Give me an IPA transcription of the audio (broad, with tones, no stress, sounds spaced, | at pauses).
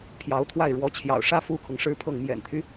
pʰ j ɑ˧˥ ʊ̯ t̪ʰ w a˥˩ ɪ̯ ɻ w ɔ˧˥ t͡ɕʰ j ɑ̰˨˩ ʊ̯ ʂ ä˥ f u˥ kʰ ʊ˨ ŋ ʂ ɻ̩˥ pʰ ɤ˥˩ ŋ m j ɛ̰˨˩ n t̪ʰ y˦